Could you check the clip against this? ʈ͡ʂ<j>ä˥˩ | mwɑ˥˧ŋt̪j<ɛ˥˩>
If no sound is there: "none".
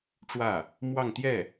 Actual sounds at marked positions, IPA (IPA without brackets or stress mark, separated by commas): w, ɛ˥˩